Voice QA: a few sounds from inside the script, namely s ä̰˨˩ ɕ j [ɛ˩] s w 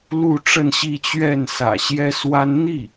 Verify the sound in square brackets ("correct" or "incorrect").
incorrect